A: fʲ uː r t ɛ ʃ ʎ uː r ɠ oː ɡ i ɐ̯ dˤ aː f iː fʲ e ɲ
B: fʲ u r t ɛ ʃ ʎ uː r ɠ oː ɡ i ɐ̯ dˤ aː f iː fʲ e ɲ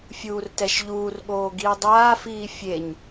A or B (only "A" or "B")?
A